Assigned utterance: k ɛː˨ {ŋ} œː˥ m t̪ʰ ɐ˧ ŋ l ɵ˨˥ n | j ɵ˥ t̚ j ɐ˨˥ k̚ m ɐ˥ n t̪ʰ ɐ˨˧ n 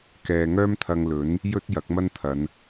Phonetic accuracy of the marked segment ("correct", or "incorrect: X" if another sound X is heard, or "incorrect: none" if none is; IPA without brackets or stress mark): correct